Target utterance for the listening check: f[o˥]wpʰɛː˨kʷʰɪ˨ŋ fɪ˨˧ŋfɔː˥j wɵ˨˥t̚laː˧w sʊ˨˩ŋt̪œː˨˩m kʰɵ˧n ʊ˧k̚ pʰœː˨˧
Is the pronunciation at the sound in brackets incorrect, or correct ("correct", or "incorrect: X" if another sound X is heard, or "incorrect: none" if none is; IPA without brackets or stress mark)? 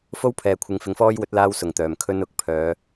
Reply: correct